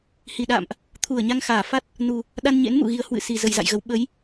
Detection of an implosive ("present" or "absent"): present